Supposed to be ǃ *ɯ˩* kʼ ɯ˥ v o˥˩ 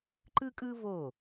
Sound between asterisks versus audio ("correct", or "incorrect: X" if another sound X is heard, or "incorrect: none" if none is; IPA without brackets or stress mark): incorrect: ɯ˥